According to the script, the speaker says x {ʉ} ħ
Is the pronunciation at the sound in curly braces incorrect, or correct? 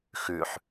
correct